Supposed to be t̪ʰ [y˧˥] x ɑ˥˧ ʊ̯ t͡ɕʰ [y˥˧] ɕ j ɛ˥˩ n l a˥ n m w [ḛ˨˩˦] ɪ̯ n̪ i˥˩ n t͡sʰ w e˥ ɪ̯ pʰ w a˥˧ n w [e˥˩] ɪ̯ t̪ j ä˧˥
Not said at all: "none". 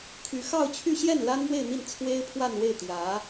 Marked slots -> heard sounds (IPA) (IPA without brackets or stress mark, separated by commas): y˧˥, y˥˧, e˥˧, e˥˩